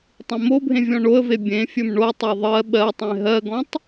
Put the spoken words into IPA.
tˤ ẽ m o bʱ ẽ vʲ ɔ̃ ɳ o ə̯ v e bʲ ẽ fʲ ɵ m ɳ o tˤ ø ðˤ ɜ ɓ ɜ tˤ ẽ ɦ ɜ ɡ ɔ̃ tˤ

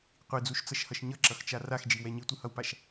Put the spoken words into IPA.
qʷ i d͡z u ʃ t͡s ʌ ʃ h ʌ ʃ ɲ ʌ ǁ ʌ x t͡ʃ a r a x d͡ʒ i w ɛ ɲ i tʷ ɯ h ʌ w p a ʃ

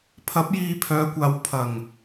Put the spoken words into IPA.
pʰ ɐ˨˥ p̚ j iː˧ pʰ œː˨˧ kʷ aː˨˧ w pʰ ɐ˨˩ ŋ

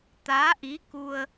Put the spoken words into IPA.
t̪ aː˧˥ ʔ i˧˥ k u˧ ə̯

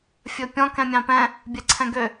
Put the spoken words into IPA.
fʲ ɵ pʲ ɔ̃ k ɛ̃ mʲ ɑ̃ p ɛ̃ | bʲ ɛ ǀʰ ɛ̃ ɡ ø

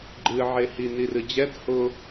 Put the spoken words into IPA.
ɡ͡ǃ ɨ ʕ e h i n i r ɨ d͡ʑ ɛ d h ʊ

